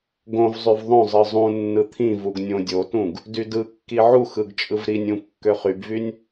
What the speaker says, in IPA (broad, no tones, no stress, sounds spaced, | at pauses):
ɡ õ v zˤ y v ðˤ õ zˤ ɯ zˤ ũ nː ɯ t̪ʰ ĩ v u ɡ nʲ õ dʲ o t ũ ɡ | d y d ɯ kː i ʕ u x ɯ ɡ t͡ʃʼ ɯ v ɾ i nʲ ũ kː ø χ y b v y nʲ